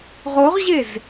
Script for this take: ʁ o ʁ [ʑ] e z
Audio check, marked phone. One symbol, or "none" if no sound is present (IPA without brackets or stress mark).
ʑ